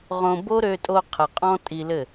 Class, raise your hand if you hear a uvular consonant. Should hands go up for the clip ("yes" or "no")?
yes